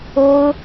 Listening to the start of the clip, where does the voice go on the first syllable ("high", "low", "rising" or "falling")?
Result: high